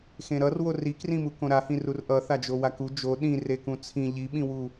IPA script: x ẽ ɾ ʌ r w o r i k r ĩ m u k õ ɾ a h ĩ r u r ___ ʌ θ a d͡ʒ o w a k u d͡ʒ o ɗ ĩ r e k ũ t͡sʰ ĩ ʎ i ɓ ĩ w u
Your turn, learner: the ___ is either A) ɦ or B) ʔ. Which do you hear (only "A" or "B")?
B